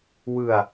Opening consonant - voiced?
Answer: yes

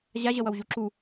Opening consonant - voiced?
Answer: yes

